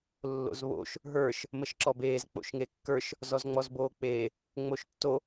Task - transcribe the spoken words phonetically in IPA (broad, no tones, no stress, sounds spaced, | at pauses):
lː o̰ z β o̰ ʃ | ɦ ə˞ ʃ | m ə ʃ ǁ ɔ b eː z k͡p o̰ ʃ ŋ e kː ə˞ ʃ | z ɔ z ŋ͡m ɔ z b oː k͡p eː | ŋ͡m o ʃ tː o